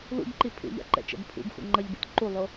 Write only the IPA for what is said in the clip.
lṵbǃi pʰṵʎa̰ǃɛ̰t͡ʃɛ̰b pʰṵbxṵ ŋ͡ǃʌʎbḭt ǃulˠo

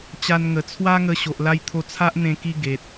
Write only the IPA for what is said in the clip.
t͡ɕa˧nŋə˨˩ t͡sʰwa˦ŋə˧ ɕo˨ʔla˧jt̪ʰo˧ t͡sʰa˦ʔn̪ẽ˧ki˧ ɡe˨t̚

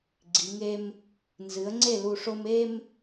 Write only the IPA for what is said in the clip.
ɡ͡ǀi˩˧ŋe˦m | nzɨ˩˥ə̯ŋ͡ǀe˥˩lu˧˩ʂo˦m e˦m

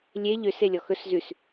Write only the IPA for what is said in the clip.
lʲe ʎøs elʲɔxɵs zʉs

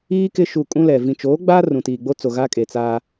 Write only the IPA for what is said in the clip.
iː˦ kɪ˦ ʃu˨ kʼũ˦lɛ˨ vĩ˨t͡ʃoː˨˦ɡ͡baː˦ rũ˨tiː˨ɡ͡bo˦t͡so˨ ɣa˦kʼe˨t͡saː˦

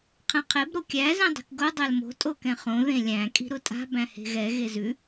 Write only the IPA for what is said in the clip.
qʰɛ̃qʰeb ɾokʲæ zĩdˤi̤kɡo dˤælmo̤ tʼokɛ̃χõ ðẽlʲæ̃ kʼi̤ɾʊtʼa̤ bæ̃he̤ɣɛ ɣezʉ

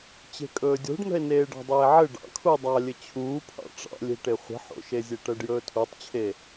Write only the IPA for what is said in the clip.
t͡ɕe̤kʼɵːdʲo̤ɖnə̤e̯ neːɖɑ̤dˤeːʕɘ ɖɑ̰ kʰu dˤɑlʲɘ t͡ɕʰuːpʰɑ̰ ʈ͡ʂɑ̰lʲe̤ʈe χʷə̤ħo̰ʃezʲe ʈɜɖjɵːtʰutˤt͡ɕʰe

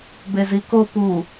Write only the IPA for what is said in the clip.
beziko pu

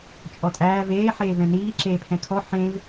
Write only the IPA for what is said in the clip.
t͡ʃʼɔtʼæːv eː ħeːvɛ̃niː ǁeːpʰɛ̃kʰɔ ħẽv

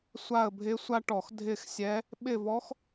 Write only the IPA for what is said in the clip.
sʷa˦˨ə̯bʱɪ˧˥ sʷa˥ʈɔ˧˩˧x dʱɪ˦˨xsʲɛ˧˥ | ɓɪ˦˨vɔ˧˥x

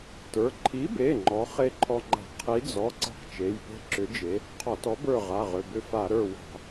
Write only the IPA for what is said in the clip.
tə˞˩˧˩ ǃʰi˨˥be˩˧˩ ŋ͡ǃɔ˨˥χe˦˨ǃʰɔ˦ŋ͡ǃa̤˧˩˧ qʰi˨˥d͡zɔ˩˧˩ ǀa̤˦qt͡ʃe˩˧˩jpe̤˦˨ ǁʏ˨˥d͡ʒe˨˥ | qʰɔ˧˩˧tɔ˨˥bə˞˦˨ ʁa˩˧˩ʁʏ˩˧˩ bʏ˦fa˧˩˧ ɾə˞˦˨wa̤˧˩˧

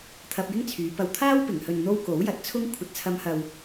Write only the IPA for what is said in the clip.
t̪ʰɐ˧p̚jɪ˥ŋt͡sʰyː˨˧ pɐ˨wt̪ʰaː˥wpɪ˨˩ŋ hɵ˨nn̪o˧w ko˨˥wjɐ˨˥t̚t͡sʰʊ˥ŋ kʷʰɐ˨˥t̚t͡sʰɐ˧mhɐ˨w

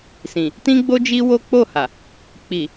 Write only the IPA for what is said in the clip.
sĩ˨ | tĩ˦ɡ͡bo˦ d͡ʒi˦wo˦ k͡po˦˨ha˨ | k͡pi˨

